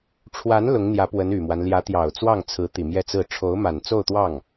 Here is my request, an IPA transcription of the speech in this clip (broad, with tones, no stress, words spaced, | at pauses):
ʈ͡ʂʰwa˧˥n lʊ˧˥ŋn̪jä˧˥pwə˧˥n y˨˩mwa˦n ljä˧˥t̪jɑ˨˩ʊ̯t͡swɑ˥˩ŋt͡sʰɹ̩˧˥ t̪i˨˩mjɛ˥˧t͡sɹ̩˥˩ ʈ͡ʂʰo˧˥ʊ̯ma˨˩nt͡so˥˧ʊ̯t̪wɑ˥˩ŋ